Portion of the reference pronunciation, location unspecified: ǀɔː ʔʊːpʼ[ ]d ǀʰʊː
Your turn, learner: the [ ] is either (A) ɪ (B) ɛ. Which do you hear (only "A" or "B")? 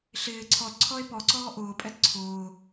B